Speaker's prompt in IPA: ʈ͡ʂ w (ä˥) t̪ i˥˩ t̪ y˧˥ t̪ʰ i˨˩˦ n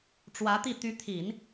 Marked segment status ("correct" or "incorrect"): incorrect